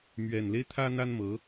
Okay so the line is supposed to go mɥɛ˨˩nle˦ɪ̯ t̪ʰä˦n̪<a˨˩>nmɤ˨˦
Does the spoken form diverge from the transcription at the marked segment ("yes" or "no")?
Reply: yes